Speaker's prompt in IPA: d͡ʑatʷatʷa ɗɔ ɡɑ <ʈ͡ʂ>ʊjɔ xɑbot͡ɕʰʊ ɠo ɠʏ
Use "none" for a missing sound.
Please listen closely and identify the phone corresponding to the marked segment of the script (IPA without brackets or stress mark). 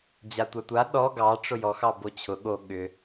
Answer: ʈ͡ʂ